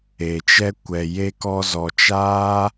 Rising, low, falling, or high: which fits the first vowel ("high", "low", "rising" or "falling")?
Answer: low